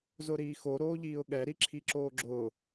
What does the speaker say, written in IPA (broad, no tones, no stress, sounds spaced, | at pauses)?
z ʊ ɾ iː x o ɾ oː ʎ iː ʊ̯ ɠ ɛ ɾ i ǁʰ i ǁ oː ɡ͡ǁ ʊː